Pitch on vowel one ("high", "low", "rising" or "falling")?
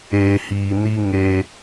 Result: low